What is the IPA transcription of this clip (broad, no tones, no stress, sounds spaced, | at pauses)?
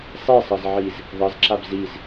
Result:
sˤ i sˤ ɤ z ʕ i z | ðˤ ɤ z ǁ a b z i z